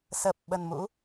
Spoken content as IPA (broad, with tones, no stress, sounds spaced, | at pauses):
s əː˨˩ p̚ ɓ ə˨˩ n m ṵ˧˥